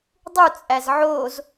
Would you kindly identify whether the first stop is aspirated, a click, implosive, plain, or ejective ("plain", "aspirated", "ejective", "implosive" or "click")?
plain